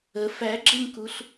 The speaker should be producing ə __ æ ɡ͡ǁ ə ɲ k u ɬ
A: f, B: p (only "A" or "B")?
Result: A